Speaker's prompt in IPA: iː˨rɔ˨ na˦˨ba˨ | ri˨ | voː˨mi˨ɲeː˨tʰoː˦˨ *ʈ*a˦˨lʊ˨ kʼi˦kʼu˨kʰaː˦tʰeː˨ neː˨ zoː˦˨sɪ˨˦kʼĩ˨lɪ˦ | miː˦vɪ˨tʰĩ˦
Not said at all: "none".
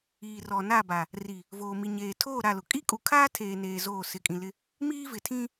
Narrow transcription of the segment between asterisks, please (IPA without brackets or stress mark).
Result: ɾ